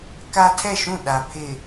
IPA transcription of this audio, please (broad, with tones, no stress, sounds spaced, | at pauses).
k a˦ tʰ ɛ˦˨ ʃ ũ˦˨ ɗ a˨ pʰ ɪ˨